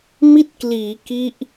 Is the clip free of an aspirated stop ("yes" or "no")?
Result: yes